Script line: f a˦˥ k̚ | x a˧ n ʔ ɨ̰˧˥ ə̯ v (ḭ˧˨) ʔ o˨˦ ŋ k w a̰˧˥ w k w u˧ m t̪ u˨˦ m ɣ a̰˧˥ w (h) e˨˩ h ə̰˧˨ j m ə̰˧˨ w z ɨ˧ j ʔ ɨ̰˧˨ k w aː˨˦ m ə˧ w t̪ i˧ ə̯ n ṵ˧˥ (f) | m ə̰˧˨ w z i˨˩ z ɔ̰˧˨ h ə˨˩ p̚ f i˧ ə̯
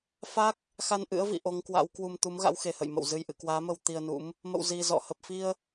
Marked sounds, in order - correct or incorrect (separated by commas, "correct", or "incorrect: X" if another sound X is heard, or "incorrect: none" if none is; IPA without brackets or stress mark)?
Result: correct, incorrect: x, incorrect: m